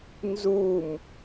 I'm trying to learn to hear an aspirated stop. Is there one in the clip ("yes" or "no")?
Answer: no